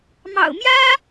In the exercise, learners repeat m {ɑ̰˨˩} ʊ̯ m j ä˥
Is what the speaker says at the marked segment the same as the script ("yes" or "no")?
yes